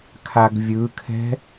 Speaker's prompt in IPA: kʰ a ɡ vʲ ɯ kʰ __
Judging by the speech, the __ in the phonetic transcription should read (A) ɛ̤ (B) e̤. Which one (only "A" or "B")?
A